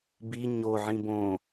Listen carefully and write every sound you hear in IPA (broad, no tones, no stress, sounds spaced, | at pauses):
b i ɲ o ʕ ĩ b õ